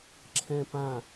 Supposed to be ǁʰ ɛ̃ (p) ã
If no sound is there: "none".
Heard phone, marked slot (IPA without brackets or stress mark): p